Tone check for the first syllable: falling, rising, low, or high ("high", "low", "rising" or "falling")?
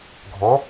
rising